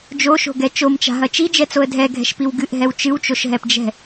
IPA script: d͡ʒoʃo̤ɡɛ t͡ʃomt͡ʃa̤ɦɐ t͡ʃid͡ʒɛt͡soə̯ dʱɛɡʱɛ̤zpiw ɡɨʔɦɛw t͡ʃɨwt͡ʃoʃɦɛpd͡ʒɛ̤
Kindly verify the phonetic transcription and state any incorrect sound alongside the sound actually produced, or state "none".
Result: z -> ʃ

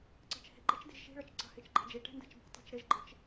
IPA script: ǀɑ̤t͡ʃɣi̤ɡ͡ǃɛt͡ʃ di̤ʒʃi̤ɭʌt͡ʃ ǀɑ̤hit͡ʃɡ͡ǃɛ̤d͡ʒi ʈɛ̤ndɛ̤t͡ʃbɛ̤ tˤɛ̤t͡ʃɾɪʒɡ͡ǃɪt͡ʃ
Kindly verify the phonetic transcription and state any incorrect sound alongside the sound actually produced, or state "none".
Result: ɣ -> h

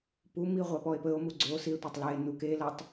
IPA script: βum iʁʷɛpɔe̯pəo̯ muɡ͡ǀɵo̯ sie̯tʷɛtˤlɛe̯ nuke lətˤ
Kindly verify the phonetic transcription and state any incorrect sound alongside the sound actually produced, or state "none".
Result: β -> p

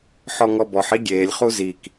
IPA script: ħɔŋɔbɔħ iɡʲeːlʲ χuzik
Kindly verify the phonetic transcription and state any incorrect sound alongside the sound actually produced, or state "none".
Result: none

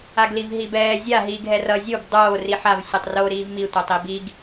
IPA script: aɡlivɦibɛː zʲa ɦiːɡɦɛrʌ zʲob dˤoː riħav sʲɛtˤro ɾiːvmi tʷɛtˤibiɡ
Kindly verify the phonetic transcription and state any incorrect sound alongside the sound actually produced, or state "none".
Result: none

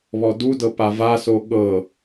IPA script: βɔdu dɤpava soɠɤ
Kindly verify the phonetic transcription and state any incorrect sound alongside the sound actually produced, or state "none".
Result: none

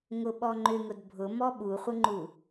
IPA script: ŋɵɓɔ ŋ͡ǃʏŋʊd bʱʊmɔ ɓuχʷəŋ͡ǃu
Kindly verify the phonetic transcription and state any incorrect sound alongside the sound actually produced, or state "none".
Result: ɵ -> ʊ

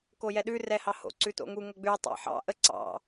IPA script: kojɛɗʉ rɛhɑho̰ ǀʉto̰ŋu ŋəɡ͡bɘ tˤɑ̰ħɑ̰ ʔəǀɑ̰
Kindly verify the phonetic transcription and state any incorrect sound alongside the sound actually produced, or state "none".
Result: ɘ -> ʉ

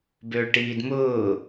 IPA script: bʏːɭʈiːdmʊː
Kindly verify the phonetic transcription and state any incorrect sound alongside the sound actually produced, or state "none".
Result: none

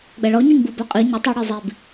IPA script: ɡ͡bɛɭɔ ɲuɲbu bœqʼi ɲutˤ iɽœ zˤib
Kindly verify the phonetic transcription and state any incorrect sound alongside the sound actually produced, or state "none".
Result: none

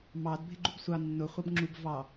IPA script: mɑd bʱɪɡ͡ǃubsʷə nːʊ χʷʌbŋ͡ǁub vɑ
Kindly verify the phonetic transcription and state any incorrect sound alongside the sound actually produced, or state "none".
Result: ə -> ɑ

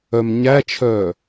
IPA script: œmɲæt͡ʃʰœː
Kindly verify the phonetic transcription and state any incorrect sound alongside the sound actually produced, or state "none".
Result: none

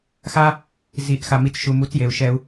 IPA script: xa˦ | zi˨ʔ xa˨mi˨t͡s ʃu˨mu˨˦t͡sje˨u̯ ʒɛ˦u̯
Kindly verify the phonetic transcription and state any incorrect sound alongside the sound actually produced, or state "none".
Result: ʒ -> ʃ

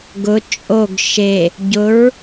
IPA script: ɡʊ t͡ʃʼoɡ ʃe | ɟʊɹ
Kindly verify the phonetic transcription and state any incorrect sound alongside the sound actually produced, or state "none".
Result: none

